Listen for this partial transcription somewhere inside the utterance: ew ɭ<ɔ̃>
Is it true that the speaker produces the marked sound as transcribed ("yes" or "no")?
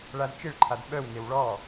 no